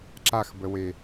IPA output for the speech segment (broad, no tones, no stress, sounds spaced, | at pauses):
ǁ a x b ə w e